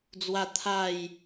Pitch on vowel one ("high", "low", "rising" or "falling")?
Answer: high